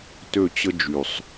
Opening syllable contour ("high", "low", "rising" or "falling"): falling